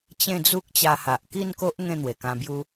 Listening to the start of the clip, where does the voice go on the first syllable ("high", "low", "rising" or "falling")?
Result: falling